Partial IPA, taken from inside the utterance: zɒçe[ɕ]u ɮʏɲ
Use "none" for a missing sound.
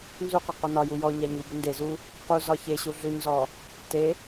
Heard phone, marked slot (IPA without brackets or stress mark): ɕ